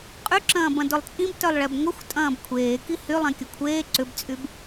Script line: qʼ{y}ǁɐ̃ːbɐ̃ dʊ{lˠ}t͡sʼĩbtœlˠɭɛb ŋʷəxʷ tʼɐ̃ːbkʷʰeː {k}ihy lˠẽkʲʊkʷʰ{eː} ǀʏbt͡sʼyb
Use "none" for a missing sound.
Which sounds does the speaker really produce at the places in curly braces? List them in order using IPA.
y, lˠ, k, eː

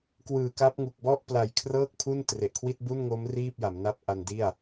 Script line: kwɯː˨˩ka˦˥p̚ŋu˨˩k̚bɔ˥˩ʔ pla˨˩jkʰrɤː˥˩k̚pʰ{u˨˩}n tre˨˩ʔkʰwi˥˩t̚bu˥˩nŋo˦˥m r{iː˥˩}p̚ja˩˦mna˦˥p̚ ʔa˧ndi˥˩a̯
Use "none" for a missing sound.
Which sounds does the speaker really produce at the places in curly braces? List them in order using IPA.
u˥˩, iː˥˩

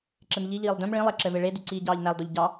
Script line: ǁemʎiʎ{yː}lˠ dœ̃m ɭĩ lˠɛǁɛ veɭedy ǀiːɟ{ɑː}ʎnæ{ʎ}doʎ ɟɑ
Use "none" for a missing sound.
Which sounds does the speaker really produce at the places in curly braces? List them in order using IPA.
iː, ɑː, lˠ

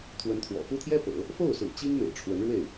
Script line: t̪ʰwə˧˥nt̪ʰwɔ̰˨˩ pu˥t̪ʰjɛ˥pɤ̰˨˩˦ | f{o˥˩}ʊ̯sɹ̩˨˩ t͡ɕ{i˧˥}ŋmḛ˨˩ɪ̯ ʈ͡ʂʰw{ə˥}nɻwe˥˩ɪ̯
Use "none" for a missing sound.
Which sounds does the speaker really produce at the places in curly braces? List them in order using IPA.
o˥˩, i˥, ə˧˥

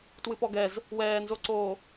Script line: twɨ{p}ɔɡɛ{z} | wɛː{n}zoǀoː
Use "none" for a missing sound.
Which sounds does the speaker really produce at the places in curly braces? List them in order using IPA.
p, z, n

